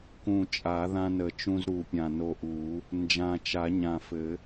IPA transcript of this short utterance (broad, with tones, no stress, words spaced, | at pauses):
kũ˨˩t͡ʃʼa˨˩˦ ðã˧nə˨˩˦t͡ʃũ˧z ɾu˨˩pʲã˨˩ no˧ʔu˨˩˦ | nd͡ʒã˨˩t͡ʃa˨˩˦ɲã˨˩fɘ˨˩˦